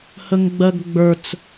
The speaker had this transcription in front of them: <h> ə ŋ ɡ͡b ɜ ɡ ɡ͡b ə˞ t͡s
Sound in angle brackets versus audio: correct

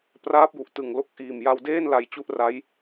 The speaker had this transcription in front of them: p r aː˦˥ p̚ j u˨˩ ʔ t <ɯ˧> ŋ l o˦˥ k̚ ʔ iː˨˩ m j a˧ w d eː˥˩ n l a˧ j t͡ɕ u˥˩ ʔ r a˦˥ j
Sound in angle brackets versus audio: incorrect: ɯ˨˩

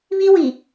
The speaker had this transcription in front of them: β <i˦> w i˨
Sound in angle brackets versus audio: correct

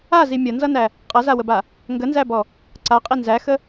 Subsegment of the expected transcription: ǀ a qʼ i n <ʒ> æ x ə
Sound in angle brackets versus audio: incorrect: z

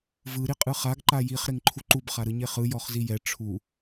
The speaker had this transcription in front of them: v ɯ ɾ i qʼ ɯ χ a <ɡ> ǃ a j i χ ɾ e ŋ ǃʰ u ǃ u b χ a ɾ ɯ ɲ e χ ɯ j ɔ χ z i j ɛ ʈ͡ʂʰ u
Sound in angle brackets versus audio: correct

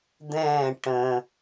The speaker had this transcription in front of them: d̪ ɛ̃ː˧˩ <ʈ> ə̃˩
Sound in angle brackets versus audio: correct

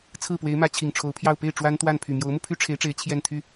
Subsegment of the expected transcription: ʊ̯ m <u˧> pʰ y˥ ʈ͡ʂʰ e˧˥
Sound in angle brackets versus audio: correct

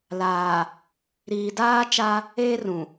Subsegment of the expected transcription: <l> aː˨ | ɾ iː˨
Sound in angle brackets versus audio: correct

